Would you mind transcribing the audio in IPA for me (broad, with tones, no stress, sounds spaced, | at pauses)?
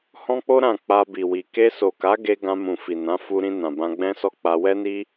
h ɔ̃˦ k͡p o˦ ɾ ã˦˨ k͡p a˧ b i˨ w i˨ k e˧ s o˨ k a˨˦ ɡ e˦ ɡ ã˧ m ũ˨ f i˨ n ã˨˦ f u˧ ɾ ĩ˧ n ã˨ b ã˧ ɡ͡b ɛ̃˦ s ɔ˦ k͡p a˧ w ɛ˦ n i˦